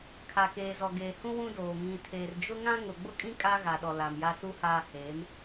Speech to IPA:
kʰ a˨ k eː˨ z ɔ˨ ɡ eː˨ h ũ˦ w ũ˦ d oː˨ ŋ ĩ˨ tʰ eː˨ r d͡ʒ ʊ˦ ŋ ã˦ ŋ ʊ˨ ɡ͡b ʊ˦ kʼ ĩ˦ kʼ a˦ ɣ a˨ ɗ ɔ˨ l a˨ m j a˦ s u˦ h aː˦ h eː˨˦ m

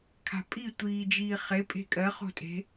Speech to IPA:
kʰ a̤ pʼ i tʷ iː d͡ʒ iː χ e pʼ e̤ kʼ ɜ χ o̤ tʼ e̤

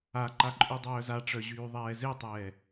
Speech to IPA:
a ǃ a ǃʼ y dˤ œː z a ʈ͡ʂ œ ʑ yː ðˤ ɛː z e tˤ ɛː

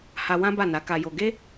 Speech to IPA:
h a˧ w ã˦ b a˦˨ n a˨˦ k a˧ j o˧ ɡ e˦

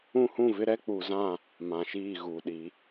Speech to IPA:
ũ˦ h ũ˦˨ v ɪ˦ ɾ ɛ˦ k͡p u˨ z ã˦˨ | m ã˨ ʃ iː˦˨ ɣ u˨ ɗ i˨˦

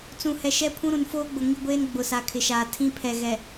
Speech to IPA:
t͡s ũ˨ h ɛ˨ ʃ ɛ˦ pʰ ũ˦ ɾ ũ˨ n f oː˦ ɡ͡b ʊ˨ ŋ i˦ ɡʷ eː˦ n ɡ͡b ʊ˨ s a˨ kʰ ɪ˨ ʃ aː˨ tʰ ĩ˦ pʰ ɛ˨ ɣ ɛ˨

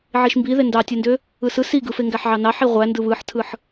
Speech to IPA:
ʕ i ʃ m b i ð e n d ɑ tʲ e n d ø | ɯ s ɯ s i ɡ ɯ f e ŋ ɡ æ ħ ʕ ɑ n ɑ ħ i ʁʷ æ n d ɯ β ɯ ħ tʰ ɯ ħ

